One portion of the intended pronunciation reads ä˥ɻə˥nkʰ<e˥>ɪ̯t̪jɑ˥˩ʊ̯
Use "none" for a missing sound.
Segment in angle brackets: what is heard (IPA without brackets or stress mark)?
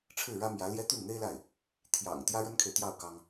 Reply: e˨